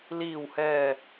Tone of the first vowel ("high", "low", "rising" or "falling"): low